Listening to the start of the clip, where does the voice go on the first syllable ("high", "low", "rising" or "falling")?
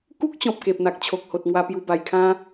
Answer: high